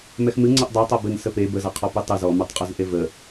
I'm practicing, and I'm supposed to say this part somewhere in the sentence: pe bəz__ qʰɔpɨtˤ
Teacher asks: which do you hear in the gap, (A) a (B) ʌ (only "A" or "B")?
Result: B